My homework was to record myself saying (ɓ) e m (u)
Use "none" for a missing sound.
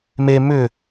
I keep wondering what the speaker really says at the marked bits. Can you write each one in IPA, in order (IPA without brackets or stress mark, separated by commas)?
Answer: m, ʏ